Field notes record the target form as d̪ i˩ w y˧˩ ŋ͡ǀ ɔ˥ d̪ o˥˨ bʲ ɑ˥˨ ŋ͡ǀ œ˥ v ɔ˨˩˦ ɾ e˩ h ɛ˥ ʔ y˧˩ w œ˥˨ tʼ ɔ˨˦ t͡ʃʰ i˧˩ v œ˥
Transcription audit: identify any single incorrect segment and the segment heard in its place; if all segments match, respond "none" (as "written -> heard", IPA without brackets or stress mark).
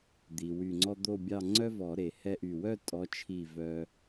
none